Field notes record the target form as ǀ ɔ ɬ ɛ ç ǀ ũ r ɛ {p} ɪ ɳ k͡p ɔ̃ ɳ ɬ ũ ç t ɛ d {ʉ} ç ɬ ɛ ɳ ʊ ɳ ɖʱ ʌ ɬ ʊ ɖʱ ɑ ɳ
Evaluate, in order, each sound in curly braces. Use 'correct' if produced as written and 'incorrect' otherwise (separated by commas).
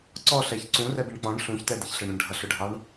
incorrect, incorrect